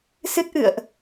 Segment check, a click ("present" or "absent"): absent